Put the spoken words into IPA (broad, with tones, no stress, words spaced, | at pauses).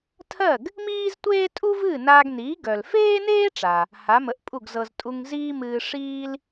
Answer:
tʰɜ˥˩ɡ | miː˥ztʷeː˥ tʼu˥vɨː˥˩naː˧ɡniː˩˥ ɡœ˩l feː˥neː˥ʈ͡ʂa˩ | ha˩˥mə˩˥ʔpʼu˥˩ɡ zɤ˧z tʼu˧ŋ ziː˥mɨː˧ ʂiː˥l